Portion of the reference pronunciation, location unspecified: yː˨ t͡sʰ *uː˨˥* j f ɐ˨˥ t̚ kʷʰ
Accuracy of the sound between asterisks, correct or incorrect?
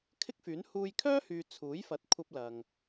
correct